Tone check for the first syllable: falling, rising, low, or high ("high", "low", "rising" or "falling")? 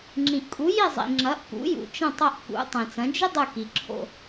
low